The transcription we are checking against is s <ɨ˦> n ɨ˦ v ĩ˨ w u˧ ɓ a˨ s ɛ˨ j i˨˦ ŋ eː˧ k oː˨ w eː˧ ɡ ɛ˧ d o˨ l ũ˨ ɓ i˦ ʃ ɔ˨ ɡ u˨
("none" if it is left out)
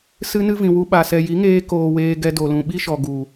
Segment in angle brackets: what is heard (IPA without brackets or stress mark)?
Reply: ɨ˦